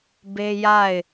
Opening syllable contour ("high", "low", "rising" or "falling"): high